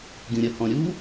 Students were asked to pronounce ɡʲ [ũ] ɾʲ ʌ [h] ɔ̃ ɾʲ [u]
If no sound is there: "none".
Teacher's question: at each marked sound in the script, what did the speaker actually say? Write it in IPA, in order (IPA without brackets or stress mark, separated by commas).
ũ, h, u